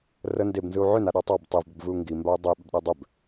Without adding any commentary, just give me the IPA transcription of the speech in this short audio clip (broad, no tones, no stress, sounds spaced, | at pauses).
r ə n d e b n z ɯ u̯ ʕ ʏ n a ɗ a tˤ a b tˤ i v b ʏ b v ɯ u̯ ŋ ɡ i m b a u̯ dˤ ə i̯ ɓ ʏ b ɗ e dˤ ʏ b